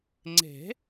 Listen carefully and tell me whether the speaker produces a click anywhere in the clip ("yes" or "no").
yes